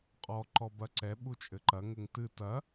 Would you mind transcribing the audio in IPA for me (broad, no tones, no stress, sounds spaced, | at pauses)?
qʼ ɔ ǃ ɔ b ɐ ǀ ɛ ɓ u t͡ʃʼ ɘ ǃ ɐ ŋ ɘ ŋ t ɨ t ɐ